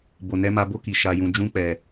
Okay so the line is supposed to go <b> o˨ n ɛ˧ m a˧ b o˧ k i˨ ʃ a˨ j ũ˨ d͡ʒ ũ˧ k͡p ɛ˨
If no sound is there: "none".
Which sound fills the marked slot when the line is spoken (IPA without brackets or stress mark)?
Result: b